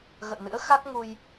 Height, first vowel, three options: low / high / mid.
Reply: mid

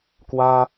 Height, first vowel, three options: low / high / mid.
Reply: low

